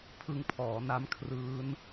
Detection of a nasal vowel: absent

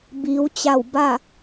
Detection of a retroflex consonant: absent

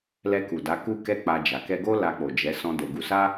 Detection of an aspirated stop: absent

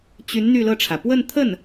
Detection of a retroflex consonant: present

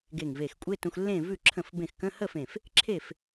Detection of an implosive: absent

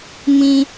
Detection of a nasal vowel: present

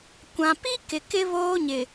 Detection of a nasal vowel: present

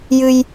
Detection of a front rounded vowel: absent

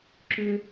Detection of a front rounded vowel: present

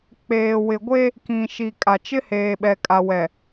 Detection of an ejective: present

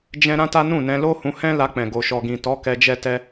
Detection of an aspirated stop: absent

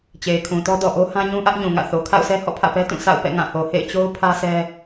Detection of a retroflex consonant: absent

